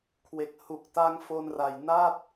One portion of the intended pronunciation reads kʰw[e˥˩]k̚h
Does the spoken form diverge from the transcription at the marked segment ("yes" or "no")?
yes